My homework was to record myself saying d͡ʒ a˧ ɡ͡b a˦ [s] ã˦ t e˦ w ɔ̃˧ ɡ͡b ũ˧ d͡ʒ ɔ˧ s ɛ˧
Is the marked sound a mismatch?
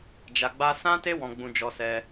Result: no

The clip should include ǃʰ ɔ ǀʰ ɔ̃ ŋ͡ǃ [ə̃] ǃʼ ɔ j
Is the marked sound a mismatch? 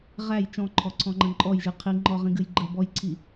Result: no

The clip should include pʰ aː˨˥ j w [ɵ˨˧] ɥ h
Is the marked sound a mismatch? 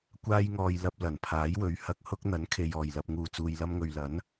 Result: no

